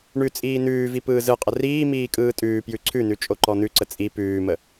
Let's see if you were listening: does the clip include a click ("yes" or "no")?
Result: yes